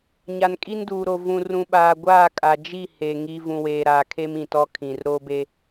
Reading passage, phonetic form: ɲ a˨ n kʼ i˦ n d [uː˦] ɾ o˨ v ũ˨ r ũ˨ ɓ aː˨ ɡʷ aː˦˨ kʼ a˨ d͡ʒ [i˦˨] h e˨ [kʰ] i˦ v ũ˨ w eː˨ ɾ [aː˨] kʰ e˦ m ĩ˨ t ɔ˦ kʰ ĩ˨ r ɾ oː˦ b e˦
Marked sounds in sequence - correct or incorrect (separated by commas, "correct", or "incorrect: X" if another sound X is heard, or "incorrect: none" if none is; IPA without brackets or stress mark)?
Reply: incorrect: uː˨, correct, incorrect: ŋ, correct